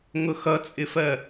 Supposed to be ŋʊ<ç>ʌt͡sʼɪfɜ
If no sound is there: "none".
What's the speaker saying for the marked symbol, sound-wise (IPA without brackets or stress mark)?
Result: x